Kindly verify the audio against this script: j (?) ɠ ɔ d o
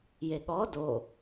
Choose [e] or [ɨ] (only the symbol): e